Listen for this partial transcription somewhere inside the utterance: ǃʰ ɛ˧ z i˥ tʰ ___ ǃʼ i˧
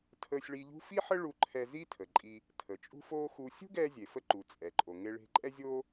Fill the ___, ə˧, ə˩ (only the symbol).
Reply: ə˩